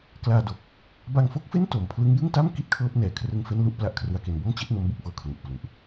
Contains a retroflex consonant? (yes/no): no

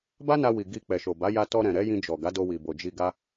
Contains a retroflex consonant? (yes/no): no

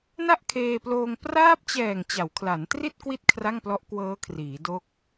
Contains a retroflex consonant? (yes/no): no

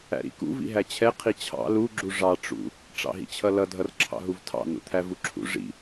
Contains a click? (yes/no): yes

